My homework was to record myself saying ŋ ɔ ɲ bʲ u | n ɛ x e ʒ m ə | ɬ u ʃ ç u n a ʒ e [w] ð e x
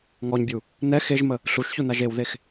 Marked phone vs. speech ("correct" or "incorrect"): correct